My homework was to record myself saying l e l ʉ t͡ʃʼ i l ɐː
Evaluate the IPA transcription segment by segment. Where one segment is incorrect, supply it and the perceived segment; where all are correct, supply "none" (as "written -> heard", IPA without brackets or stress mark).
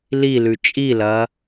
e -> i